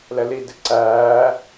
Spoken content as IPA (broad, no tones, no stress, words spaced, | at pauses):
lɛlidɪ ǀæː